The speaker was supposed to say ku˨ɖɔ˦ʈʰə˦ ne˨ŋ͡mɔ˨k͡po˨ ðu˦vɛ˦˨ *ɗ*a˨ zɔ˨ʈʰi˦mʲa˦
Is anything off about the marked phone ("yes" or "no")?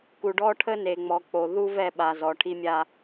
yes